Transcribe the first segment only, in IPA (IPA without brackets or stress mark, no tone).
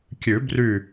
kʲ